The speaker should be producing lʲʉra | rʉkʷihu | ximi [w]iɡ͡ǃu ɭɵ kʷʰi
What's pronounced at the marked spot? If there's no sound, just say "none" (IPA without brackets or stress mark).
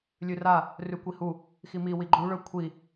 w